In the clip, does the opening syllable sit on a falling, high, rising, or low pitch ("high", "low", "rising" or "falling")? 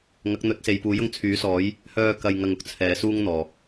rising